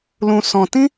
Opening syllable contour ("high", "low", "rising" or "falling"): low